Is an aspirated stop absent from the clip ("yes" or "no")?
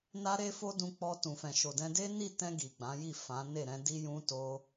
yes